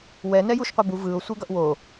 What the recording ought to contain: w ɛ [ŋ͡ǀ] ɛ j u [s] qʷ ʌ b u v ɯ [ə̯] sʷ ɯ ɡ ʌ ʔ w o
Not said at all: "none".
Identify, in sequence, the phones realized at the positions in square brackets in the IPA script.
n, ʃ, ʊ̯

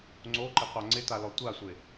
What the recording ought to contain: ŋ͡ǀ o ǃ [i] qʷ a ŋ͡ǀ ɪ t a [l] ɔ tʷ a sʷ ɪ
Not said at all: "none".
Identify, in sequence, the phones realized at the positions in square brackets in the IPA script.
ɪ, l

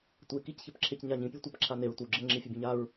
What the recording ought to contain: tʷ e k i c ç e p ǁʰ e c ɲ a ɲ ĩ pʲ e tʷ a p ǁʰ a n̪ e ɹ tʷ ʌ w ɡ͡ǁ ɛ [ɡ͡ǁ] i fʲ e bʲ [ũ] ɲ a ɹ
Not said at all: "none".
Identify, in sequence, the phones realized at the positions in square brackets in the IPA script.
ŋ͡ǁ, õ

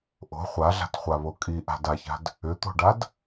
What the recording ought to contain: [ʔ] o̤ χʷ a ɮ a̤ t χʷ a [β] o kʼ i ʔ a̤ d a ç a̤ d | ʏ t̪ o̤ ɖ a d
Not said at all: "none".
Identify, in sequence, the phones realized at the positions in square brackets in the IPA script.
ʔ, β

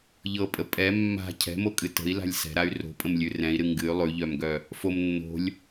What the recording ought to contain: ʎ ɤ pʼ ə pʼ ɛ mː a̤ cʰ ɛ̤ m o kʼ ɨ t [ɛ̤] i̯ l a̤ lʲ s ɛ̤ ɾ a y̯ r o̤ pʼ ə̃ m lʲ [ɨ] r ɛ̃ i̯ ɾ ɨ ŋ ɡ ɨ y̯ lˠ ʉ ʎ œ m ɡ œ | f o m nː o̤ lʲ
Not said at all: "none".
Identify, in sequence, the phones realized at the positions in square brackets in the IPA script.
ə̤, ʉ

